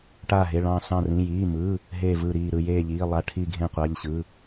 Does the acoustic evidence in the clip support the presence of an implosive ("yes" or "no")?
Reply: no